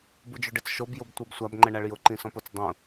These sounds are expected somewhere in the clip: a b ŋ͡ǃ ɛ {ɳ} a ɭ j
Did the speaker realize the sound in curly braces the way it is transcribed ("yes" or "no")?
yes